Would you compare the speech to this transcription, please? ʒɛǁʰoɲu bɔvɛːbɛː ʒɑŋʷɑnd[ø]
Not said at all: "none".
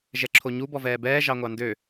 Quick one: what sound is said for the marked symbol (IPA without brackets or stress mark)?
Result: ø